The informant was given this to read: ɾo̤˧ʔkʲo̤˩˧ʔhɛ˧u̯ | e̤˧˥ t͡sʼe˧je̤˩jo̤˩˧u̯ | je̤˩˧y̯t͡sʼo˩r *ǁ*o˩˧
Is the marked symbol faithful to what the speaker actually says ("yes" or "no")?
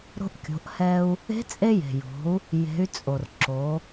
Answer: yes